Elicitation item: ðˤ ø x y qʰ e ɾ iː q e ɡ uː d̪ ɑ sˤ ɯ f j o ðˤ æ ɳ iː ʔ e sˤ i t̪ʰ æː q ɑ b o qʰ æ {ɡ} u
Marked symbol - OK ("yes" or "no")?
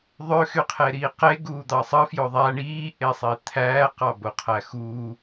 no